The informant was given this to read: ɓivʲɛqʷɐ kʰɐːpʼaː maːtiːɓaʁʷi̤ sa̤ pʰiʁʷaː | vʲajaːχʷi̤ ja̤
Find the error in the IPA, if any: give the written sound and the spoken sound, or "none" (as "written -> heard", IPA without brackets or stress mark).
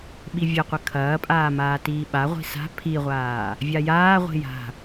χʷ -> ʁʷ